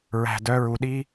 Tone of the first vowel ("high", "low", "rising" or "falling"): low